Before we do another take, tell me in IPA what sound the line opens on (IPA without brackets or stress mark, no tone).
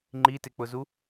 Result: ŋ͡ǃ